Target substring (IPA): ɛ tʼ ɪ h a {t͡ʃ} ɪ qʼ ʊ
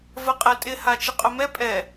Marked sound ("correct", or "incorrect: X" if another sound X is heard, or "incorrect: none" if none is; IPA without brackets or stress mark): correct